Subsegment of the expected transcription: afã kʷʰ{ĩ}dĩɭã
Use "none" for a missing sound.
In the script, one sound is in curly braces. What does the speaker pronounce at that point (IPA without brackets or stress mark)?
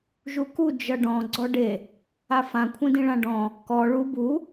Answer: ĩ